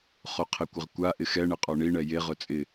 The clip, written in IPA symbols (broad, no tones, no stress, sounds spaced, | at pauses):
χ o qʰ ɪ kʷ ɪ ʁ kʷ a ʔ ɪ x ɛ ɳ ɪ qʼ ɔ ɳ i ɳ ɛ j e ʁ ʊ t͡sʼ ɪ